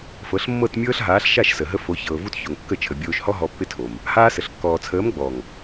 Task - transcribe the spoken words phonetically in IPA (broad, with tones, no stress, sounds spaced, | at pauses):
f ɤ˨˦ ɬ mː ɤ˦˨ t mʲ ɤː˦ ɬ ɦ aː˨˦ ɬ ʃ a˦˨ ʃ s ə˨ ɦ ə˧ f o˨˦ ç ɤː˨ v u˦ t ç o˨ ŋ kː ə˦˨ t͡ʃʰ ə˨ bʲ oː˧ ʃ h ɔ˦ ɦ ɔ˧ pː ɪ˦ tʰ o˨ m | h aː˧ s ə˨ ɬ kː ɔː˨ t͡sʰ əː˨˦ m ɡ͡b ɔ˨ ŋ